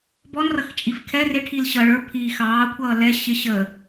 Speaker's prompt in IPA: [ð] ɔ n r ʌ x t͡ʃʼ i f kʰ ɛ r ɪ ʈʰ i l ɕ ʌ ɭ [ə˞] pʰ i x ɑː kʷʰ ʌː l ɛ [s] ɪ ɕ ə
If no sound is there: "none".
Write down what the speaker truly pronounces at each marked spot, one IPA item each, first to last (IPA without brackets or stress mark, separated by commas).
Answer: b, ə˞, ɕ